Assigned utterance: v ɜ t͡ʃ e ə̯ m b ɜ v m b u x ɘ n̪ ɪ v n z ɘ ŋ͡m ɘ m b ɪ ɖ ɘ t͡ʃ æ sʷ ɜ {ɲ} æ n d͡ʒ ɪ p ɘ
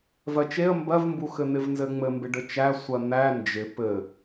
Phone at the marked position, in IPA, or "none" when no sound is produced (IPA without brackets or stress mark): n̪